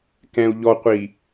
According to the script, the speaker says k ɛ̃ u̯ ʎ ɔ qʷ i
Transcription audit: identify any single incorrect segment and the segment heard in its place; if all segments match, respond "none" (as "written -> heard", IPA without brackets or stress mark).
none